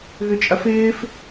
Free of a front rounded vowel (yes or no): no